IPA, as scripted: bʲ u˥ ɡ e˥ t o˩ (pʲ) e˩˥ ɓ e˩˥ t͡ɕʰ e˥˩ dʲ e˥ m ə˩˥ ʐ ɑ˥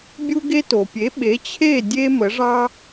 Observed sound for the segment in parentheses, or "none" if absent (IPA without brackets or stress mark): pʲ